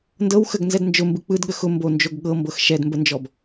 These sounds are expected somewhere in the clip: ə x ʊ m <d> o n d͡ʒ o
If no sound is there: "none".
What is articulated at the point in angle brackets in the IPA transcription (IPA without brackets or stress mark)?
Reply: b